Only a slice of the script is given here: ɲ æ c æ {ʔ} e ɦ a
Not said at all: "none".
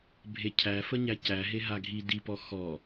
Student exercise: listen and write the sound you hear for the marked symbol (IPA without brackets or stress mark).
ɦ